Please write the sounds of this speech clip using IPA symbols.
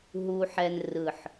ɦ u˦ ħ ɛ˦ n r ɯ˦˨ ħ

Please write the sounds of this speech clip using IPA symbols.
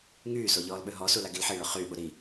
ŋ yː s o ʎ ɔː l ɓ ø ɦ ɔ s u l a ɡ i l ħ i ɭ œ χ yː ɓ u ɾ i

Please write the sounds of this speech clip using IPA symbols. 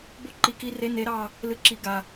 b o˦ ǃ i˨˩˦ k i˨˦ r e˨˦ n e˨˦ ɾ ɑ˦˨ | l ɨ˨˦ ǁ i˨˩˦ ɡ a˩

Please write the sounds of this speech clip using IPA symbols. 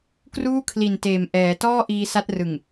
k r uː˥˩ kʰ l i˨˩ n t eː˨˩ m ʔ ɛː˩˦ t ɔː˥˩ ʔ iː˧ s a˦˥ t̚ r ɯ˨˩ ŋ

